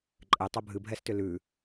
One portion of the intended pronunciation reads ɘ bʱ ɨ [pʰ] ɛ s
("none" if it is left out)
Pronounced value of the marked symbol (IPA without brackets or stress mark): bʱ